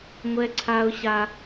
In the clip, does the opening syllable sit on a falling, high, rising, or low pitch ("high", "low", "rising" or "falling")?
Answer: high